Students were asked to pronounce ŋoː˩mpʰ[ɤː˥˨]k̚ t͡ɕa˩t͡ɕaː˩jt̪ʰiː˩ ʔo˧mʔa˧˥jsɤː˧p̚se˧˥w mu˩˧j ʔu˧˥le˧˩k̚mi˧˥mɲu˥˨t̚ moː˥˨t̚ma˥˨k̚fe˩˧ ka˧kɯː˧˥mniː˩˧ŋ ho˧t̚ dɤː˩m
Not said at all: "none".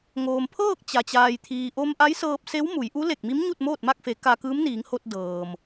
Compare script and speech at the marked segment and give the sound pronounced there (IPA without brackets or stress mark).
ɤː˥˨